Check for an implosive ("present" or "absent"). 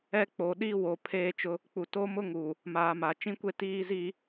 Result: present